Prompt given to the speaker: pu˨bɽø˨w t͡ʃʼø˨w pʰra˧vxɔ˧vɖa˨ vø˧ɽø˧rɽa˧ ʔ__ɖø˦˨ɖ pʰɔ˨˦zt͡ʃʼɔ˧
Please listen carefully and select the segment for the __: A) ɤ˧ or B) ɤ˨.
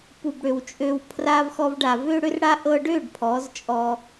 A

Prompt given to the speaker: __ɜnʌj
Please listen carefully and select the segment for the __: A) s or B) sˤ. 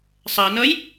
B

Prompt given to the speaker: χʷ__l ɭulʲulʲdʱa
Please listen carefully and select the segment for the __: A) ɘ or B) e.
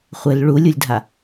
A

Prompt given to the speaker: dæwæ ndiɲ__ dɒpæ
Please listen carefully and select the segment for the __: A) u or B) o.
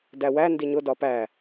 B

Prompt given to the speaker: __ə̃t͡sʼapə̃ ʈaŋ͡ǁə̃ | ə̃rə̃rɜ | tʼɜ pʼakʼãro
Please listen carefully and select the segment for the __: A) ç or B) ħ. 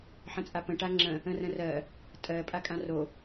B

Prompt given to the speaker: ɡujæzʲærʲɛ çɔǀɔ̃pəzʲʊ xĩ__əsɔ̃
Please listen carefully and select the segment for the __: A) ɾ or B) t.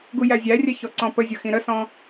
A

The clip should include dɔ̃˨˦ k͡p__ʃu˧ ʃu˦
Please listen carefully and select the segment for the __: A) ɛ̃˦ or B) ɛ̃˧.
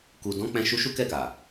B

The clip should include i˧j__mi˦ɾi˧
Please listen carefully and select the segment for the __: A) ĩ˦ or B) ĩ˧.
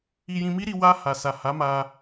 B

